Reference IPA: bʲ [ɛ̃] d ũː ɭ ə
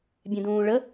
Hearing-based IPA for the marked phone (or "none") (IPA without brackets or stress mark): ɛ̃